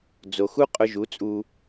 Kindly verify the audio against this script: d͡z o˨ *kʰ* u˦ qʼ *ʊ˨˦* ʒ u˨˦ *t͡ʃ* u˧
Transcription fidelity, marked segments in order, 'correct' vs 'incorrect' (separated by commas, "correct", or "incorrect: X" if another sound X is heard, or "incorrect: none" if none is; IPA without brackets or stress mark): incorrect: x, incorrect: ʊ˧, incorrect: t͡sʼ